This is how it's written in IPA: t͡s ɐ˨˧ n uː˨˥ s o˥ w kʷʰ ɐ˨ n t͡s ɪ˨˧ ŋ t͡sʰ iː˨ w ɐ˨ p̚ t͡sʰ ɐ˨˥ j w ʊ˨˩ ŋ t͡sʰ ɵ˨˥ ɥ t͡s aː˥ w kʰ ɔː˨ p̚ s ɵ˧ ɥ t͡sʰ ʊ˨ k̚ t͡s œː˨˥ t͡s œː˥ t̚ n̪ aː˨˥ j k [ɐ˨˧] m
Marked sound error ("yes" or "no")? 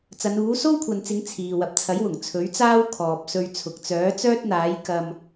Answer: yes